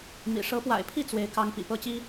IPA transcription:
mḭ˨˩ ʂɤ˧˥pwa̰˨˩ɪ̯pʰi˥˩ t͡swe˧˥ɪ̯ kɑ˥ŋpḭ˨˩ pɤ˥t͡ɕi˥

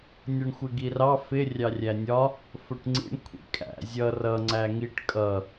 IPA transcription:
nʲʌɳxʷɪɡirɑ fɪ rʲɑrʲænʲɒ | fʊʈŋ͡ǀḭɳ kʷʰḭkʼæ̰ zʲʌ rʌ ŋ͡ǀæŋiʈ kʼʌ

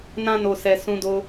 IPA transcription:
nã˦no˧sɛ˧ sũ˧do˧

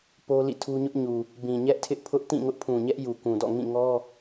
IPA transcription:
po˦lḭ˦˨tʰu˦ ɲʊ˦ʔɲu˨ | bĩ˨ ɲɛ˦ʔtʰɪ˦ʔpʰʊ˦ʔ tĩ˦˨ŋʊ˦ʔpʰũ˨ɲɛ˦ʔ ju˨kũ˨dɔ̰˦˨ ŋĩ˦˨ŋɔ˦

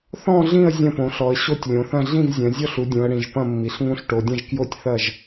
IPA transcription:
θɔ̃˥˧ɮĩ˥˧ə̯ zʲɐ̃˥˧põ˨˦ɬɔ˨˦ə̯ ɕo˥˧tʲlʲõ˨˦θɐ̃˥˧ ɮĩ˥˧vzʲɐ̃˨˦zʲɔ˥˧ɬu˨˦ dʲũ˨˦ə̯ɽĩ˨˦ʒ pɐ̃˥˧ mːi˨˦ɬŋũ˥˧ɬ ʈo˨˦dʲɐ̃˥˧ʒ kjo˥˧tʲ θɐ˥˧ʒ

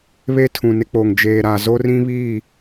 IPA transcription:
βe˦tʰũ˨nɪ˦k͡poː˨ŋ d͡ʒeː˨ɾa˨ zo˦rĩ˦βiː˦˨

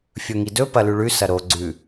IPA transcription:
fʲɵŋidɵ pɐlʉɭʉ sɐɾo ɡ͡ǀʉ

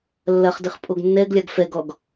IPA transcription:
lːɐχdɨχ pʼoɡnːɛɡlʲaɡ fɛɡɔɡ

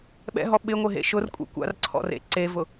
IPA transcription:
ɓɛ̰ɦɔ ɓɪŋʷɪɦḛ ʃʊrkʷʼḛ kʷa̰rǀʰɔ̰rḛ ǀevʊ

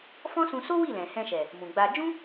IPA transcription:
fɔ̃˦sũ˧ so˦wi˦˨lɛ̃˨ hɛ̃˧ʃɛ˨ | mũ˨ɡ͡ba˧ d͡ʒũ˦

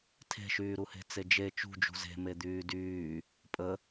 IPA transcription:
tʰe̤ʃyːɾuhe̤ t͡sed͡ʒe t͡ʃṳd͡ʒṳ ze̤me d̪yːdyː | pʼə

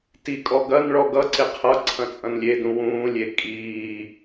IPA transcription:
tikʼɔ ɡɐnɭɔ ɡʌǀe qʰʌ ǀʰɐ̃t͡sʼɐ̃nlʲedũ wũːlʲe kʼiː

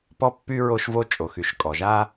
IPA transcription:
pɔ˥ pːy˥ ɹo˥ʃvo˥ t͡ʃʼo˩xy˩ʃ kʼɔ˩ʒa˥

